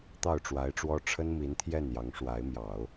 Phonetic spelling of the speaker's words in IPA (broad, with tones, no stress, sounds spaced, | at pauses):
t̪ ɑ˥˩ ʊ̯ ʈ͡ʂ w a˧˥ ɪ̯ ʈ͡ʂ w ɔ˥ ʈ͡ʂʰ ə˥ n m i˧˥ n t̪ʰ j ɛ˥˩ n j ɑ˧˥ ŋ ʂ w a˧˥ ɪ̯ m j ɑ˨˩˦ ʊ̯